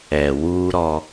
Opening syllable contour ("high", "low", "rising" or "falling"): low